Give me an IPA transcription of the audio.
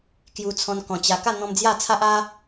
k j u˧ t͡sʰ ɔ̃˧ n k ɔ̃˨˩ t͡ɕ a˧ k a˥˧ n̪ ɔ̃˧ m d͡z j a˥˧ t͡sʰ a˦ ʔ a˦

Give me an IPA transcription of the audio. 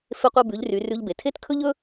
f e˧ qʷ ɛ˧ b ʉ˩˧ ʎ r y˩˧ r ʉ˧ ʎ b e˩ tʰ e˥ t kʰ ɵ˥ ʎ ɵ˥

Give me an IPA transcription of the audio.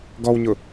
ɡ ɔ w ɲ ʊ

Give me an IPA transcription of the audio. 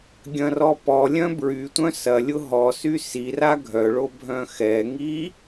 ɡʲ ɐ̃ r ɔ p ɔ lʲ œ̃ b ɹ y tʷ œ̃ s ɐ lʲ ʊ ɦ ɔ s y s i r a ɡʱ œ ɭ o bʱ œ̃ x ɛ ŋ i

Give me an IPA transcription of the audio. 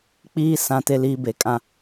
k͡p iː˦ s ã˦ t e˦ l iː˦ b e˨ kʼ ã˦

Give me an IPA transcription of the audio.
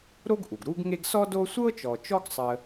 ɾ o˥ ɡ ʔ u˩ ɡ ɾ u˦ ɡ ŋ e˦ ɡ s ɔ˥ d o˦ sʷ ɤ˥ t͡ʃ ɔ˨ t͡ʃ ɔ˥ ɡ sˤ ə˥

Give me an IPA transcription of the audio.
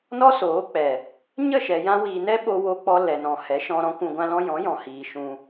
n ɔ˦ s oː˨˦ k͡p ɛ˨ | ɲ ə˦˨ ʃ ɛ˨ j ã˧ w iː˨ n ɛ˦ ɓ o˧ w o˧ k͡p ɔ˧ l ɛ˨ n ɔ̃˨ h ɛ˨˦ ʃ ɔ̃˧ ɾ ɔ̃˦ kʷ ũ˧ ɡʷ ã˦ l ɔ̃˦ j ɔ̃˨˦ j ɔ̃˨ h iː˨ ʃ ũ˧

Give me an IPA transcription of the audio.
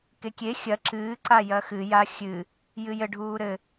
k e kʲ e xʲ ɐ ǁ ɨː ǀ a j ɐ x ɨ j a xʲ ɨ | j ɨ j ɘ ɖʱ uː ɾ ɘ

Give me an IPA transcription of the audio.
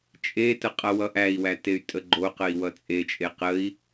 t͡ʃʼ e t ə qʼ ʌ w ʌ ʔ æ i̯ w æ t e y̯ tʼ ə ɡ͡ǃ o q ə i̯ w ʌ t͡sʼ e t͡ʃʼ e q ə i̯

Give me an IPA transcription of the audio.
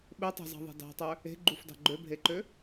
ɓ e tˤ e̤ z ɑ̤ ðˤ e̤ d ɑ̤ tˤ ø | e̤ ɡ͡ǃ u f d ɑ̤ ɡ͡ǃ ø bʱ e ǃ ø

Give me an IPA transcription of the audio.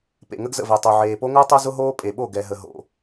p ḛ˨ ŋ ə˦ ɡ z ə̰˨ v ɛ˨ tˤ o˨ ʕ eː˨ p o˦ ŋ ʊː˦ tˤ o˦ z ʊ˦ ɦ oː˦ pʼ e˨ ɓ o˦˨ ɡ ɛ˨ ɦ ə˨ ɦ o̰˨

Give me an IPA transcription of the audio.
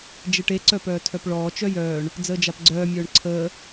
d͡ʒ e ʈ e ǀ œ p œː tʰ œ p ɭ ɔː t͡ʃ œ j œː ɳ | d͡z əː d͡ʒ a p ɡ͡ǀ œː mʲ œː ɳ ǀʰ əː

